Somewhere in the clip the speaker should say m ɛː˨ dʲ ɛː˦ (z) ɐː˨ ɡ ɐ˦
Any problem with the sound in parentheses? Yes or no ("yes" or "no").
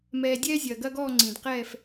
yes